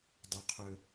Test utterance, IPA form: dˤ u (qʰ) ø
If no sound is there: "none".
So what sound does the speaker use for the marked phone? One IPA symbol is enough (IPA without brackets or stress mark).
qʰ